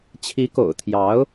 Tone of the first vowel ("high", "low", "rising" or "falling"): rising